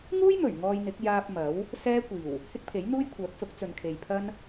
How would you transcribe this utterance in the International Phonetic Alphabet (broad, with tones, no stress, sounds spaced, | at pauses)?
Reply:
ŋ uː˥ j m ɵ˨˩ ɥ ŋ ɔː˧ j n̪ ɪ˨˥ k̚ j aː˧ p̚ m ɐ˨˥ w | s ɛː˥ kʷ iː˨˩ w | h ɪ˥ k̚ pʰ e˨˥ j n̪ uː˥ j kʷʰ œː˨˥ k̚ s ʊ˨˥ k̚ t͡s ɵ˨ n kʰ e˨ j pʰ ɐ˥ n